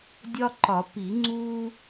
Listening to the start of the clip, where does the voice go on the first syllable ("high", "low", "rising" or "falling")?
high